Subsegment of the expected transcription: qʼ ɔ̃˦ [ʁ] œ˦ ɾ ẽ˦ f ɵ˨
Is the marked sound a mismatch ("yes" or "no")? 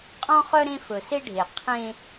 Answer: yes